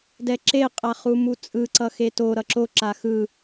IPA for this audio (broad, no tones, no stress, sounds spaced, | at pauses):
d ɛ ǁ e qʼ a χ u m u t͡sʼ ɯ ǀ ʌ x e t o ɾ ʌ ǁ o ǁ a x ɯ